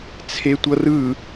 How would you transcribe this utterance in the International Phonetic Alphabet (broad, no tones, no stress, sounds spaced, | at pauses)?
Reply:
t͡sʰ e tʷ ʌ r ɯ